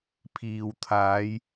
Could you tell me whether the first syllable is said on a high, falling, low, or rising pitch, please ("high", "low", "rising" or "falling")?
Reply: low